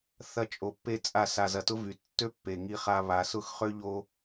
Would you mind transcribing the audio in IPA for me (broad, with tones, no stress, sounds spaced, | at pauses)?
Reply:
θ ɐ˦ t͡ʃʼ o˧ pː e˦ t͡sʼ a˦˨ s a˧ z ɐ˧ t ʊ˦ v y˨˦ tː ø˦ pː e˨ ŋ i˧ χ a˧ β a˨ s ʊ˦˨ x χ ø˦ ʎ o˦